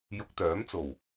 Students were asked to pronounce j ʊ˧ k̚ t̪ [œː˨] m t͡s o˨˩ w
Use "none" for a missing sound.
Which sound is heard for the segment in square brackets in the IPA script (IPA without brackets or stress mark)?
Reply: œː˨˥